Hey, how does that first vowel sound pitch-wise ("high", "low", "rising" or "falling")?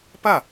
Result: falling